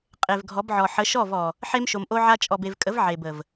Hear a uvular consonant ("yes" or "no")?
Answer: yes